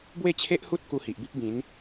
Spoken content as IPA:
bwe˥˧t͡ɕʰe˦ʔhu˦t̚ ku˧hi˨ʔbi˦p̚bĩ˨˦n

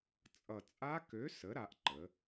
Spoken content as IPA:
t͡sʼʌ˨˩t͡sʼa˦˥kø˨˥ sə˨˥ɾa˩˧ʔǃə˩˧

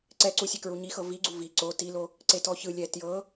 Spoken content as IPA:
ǀɛǀu sʲekɹuɲixɤ viɡ͡ǀu vi ǀo tilo | ǀetɔçɯlʲɛ tjɤ

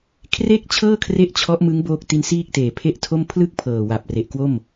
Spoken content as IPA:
kʰre˥˩k̚t͡ɕʰɤː˥˩kʰre˦˥ʔ t͡ɕʰɔ˦˥ʔmɯ˦˥ŋ boː˦˥k̚ti˦˥nsiː˥˩k̚teː˨˩ pʰe˥˩ʔtʰo˥˩m pʰlɯ˥˩k̚ pʰɤː˨˩wa˨˩p̚ re˨˩ʔkwo˥˩m

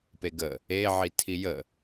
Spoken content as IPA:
peɡə | e ʕitʰijə

